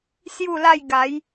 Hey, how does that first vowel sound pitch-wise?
falling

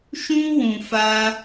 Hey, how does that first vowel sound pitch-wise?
high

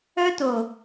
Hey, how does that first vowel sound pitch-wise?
high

